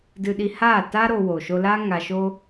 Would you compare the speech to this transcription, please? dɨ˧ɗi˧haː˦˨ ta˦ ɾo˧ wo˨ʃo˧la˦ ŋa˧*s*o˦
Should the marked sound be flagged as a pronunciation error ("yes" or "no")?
yes